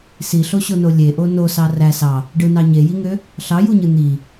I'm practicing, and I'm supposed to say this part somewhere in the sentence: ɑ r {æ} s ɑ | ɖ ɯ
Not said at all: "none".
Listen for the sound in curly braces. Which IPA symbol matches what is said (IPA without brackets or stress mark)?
æ